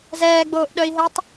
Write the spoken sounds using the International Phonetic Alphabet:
zɛːɡ͡boːʔɗœi̯ɦɛtˤ

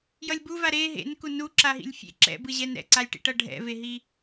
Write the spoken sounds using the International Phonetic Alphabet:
jʌlʲbuva ɾe ɦḛnku nu ǁaɦḭlʲfʲḛ ǁɛ̰bɯʑɛn ɾɛ̰ǀalʲʈḭʈʌ ɖʱɛ̰veɦi

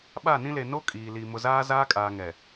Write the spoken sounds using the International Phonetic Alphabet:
ɓa˦˨nĩ˦le˨ no˦ kʼiː˨li˨ mʊ˨zaː˦zaː˦kʼaː˨ ŋɛ˨

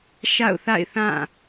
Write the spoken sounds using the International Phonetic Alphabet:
ʃa̰˦˨ʊ̯θa̰˦˨ɪ̯θã˦˨

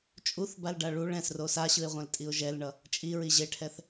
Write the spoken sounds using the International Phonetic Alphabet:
t͡ʃʼuθbalɖa ɭuɭ ɛ̃sro saɕɯɪ̯ʁʷɛ̃ltʼiʊ̯ ʒɛlɳʌ | t͡ʃʼiɹi ʑeʈʰɛθ

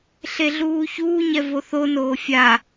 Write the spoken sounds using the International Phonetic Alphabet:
ɬeɮuːçuː ɲɛvoθonoː fʲa

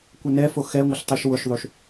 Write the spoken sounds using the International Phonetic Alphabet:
kʷɛnɛfo xɛ ŋʷɪɬtˤiʃwʊʃðˤuʃ

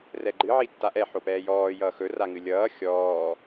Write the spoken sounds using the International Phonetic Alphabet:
rɛɡ͡ǃɨʕi tːaʔɛ ħopɛːjɔː jʌːxɵraŋɨ lʲʌː xʲɔː

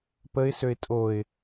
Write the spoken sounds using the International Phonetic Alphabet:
pəɪ̯søɪ̯ tʼoɪ̯

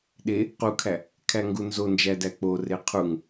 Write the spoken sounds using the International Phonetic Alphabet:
ɗe | qukʰæ | kʰæŋɡunzond͡ʒæ dæk͡pore qʰuŋ

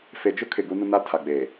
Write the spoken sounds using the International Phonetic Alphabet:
fe˨d͡ʒʊ˦ kʰɪ˨ɡu˦nʊ˦na˦ tʰa˨ɡ͡beː˨

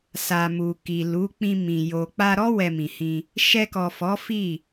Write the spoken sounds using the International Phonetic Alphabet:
sa˨mu˨ki˨lu˨˦ k͡pĩ˧mĩ˨ jo˨k͡pa˧ɾɔ˦ wɛ˧mĩ˨hĩ˧ | ʃɛ˧kɔ˨ fɔ˨˦fi˦˨

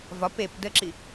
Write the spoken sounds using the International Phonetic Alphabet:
vɒp ep dəǁi

